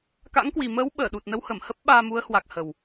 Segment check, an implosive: present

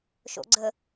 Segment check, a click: present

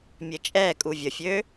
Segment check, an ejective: present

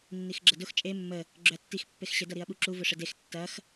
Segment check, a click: present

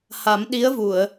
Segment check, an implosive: present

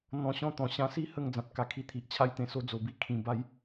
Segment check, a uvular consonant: absent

